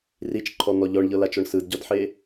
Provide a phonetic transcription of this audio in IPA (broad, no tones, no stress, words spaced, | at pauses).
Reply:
rit͡ʃǃʰɔn̪ɔ ʎɔɳʎɤlat͡ʃɔɳ sɯdɟɔdħe